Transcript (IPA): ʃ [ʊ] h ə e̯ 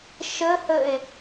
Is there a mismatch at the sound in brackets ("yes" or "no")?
yes